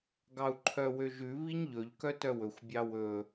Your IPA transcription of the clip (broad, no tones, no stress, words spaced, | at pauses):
ɡɑu̯ǃʰœwøʒʉ βiɲʎɵʎ kœtœwɵxʷ bʲɑwɵ